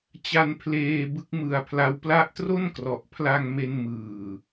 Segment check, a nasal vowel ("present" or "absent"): absent